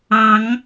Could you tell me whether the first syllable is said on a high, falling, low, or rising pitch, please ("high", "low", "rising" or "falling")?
rising